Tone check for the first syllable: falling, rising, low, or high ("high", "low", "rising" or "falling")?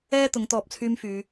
high